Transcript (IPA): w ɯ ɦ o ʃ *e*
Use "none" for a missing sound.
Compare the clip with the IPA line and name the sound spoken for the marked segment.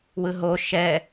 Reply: ɛ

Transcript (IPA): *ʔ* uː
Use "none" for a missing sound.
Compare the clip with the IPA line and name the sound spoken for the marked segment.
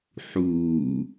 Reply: ħ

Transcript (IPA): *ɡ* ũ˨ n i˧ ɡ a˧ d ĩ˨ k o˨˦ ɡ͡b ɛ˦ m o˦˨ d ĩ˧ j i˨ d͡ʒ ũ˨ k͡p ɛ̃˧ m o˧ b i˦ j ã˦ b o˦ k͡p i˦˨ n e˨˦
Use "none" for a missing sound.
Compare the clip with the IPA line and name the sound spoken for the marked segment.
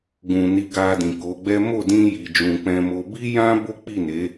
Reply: ɡ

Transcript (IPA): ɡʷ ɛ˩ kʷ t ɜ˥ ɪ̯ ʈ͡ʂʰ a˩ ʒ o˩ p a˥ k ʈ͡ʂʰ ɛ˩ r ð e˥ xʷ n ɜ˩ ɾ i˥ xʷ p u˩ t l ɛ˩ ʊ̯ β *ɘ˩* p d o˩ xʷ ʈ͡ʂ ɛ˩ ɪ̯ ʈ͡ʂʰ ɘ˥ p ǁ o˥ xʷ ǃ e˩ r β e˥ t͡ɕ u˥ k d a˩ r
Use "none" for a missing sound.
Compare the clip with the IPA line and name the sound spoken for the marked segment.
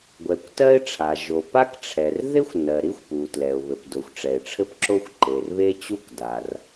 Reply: ɘ˩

